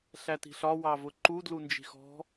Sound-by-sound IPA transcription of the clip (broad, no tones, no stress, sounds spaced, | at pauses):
ɬ æ t i̤ ɬ ɒ w ɑ v ʊ ǃ u d l u n d͡ʒ i̤ x ɔ̤